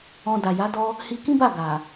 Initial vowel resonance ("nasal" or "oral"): nasal